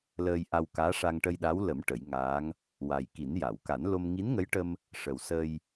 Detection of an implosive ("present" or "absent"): present